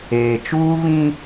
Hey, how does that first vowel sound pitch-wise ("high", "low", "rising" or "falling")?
low